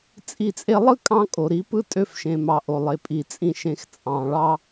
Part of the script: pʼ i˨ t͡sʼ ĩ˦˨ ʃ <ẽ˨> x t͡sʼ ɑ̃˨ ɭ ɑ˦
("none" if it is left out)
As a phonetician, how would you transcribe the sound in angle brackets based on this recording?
ẽ˧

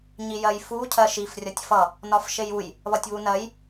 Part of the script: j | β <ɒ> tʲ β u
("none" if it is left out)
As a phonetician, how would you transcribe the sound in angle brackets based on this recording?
ʌ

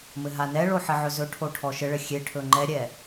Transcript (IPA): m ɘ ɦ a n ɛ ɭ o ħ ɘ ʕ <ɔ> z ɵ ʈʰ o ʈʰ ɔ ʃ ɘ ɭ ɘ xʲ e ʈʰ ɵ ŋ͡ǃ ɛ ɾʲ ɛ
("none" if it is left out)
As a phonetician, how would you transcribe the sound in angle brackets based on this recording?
ɵ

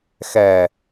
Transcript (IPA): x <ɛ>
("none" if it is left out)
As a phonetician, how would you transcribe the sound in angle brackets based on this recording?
ɛ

